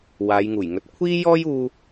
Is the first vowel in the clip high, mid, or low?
low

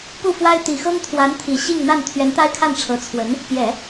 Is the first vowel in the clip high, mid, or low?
high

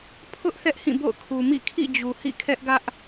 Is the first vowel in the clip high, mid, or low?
high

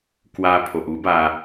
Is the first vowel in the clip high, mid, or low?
low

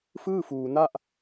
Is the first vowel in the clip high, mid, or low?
high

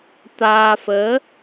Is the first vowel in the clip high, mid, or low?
low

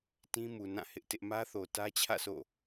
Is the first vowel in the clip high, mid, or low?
high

